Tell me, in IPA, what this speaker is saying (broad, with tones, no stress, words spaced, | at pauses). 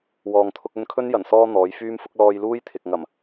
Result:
wɔː˨ŋt̪ʰʊ˧k̚ɵ˧nkʰɵ˥n jɐ˨˩nsɔː˧ n̪ɔː˨˧jfyː˥mfʊ˥k̚ lɔː˧jluː˥jt̪ʰɪ˨k̚ ŋɐ˨˩m